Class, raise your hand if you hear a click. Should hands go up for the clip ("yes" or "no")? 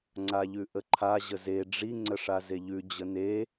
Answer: yes